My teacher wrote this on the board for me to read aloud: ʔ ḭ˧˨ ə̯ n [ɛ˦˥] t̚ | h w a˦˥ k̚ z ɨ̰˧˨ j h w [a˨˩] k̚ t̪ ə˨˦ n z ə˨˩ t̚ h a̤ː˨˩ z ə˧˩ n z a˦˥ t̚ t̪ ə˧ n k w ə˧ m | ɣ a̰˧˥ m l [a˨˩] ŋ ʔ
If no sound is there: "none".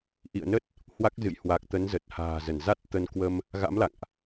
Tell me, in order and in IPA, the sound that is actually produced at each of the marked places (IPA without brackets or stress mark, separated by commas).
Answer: ə˦˥, a˨˩, a̰˧˨